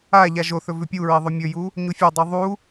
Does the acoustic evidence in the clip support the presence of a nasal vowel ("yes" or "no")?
no